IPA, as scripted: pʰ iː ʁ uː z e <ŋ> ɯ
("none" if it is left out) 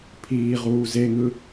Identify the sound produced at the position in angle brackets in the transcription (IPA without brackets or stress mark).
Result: ŋ